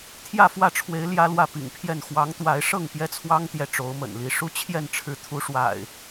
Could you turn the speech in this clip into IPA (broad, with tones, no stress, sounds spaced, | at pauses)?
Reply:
t̪ʰ j ä˥˨ f w ä˥˨ ʈ͡ʂʰ w e˨˦ ɪ̯ l j ä˦ l w ä˥˨ p ḭ˨˩ ŋ pʰ j ɛ˥˨ n x w ɑ˨˦ ŋ t̪ w a˨˦ ɪ̯ ʂ ɤ˥˨ ŋ p j ɛ˦ t͡sʰ w ɑ˦ ŋ t̪ j ɛ˨ ʈ͡ʂ o˨˦ ʊ̯ m ə̰˨˩ n l i˨˦ ʂ u˦ t͡ɕʰ j ɛ˥˨ n ʈ͡ʂʰ ɻ̩˨˦ t̪ʰ u˨˦ ʂ w a̰˨˩ ɪ̯